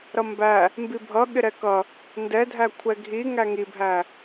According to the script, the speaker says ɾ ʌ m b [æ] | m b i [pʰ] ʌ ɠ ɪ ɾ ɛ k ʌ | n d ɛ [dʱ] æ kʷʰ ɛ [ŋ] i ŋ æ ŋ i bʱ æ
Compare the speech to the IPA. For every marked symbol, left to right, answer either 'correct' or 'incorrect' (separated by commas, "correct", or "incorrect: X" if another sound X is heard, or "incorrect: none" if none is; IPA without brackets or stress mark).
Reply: correct, incorrect: bʱ, correct, incorrect: ɡʱ